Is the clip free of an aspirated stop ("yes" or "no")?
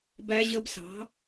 yes